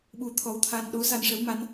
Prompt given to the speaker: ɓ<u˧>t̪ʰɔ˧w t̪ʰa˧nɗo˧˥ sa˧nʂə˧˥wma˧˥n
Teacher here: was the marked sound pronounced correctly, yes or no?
yes